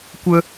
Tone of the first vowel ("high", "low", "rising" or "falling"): high